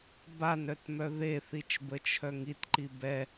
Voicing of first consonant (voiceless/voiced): voiced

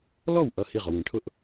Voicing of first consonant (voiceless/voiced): voiced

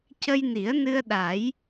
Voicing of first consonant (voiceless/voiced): voiceless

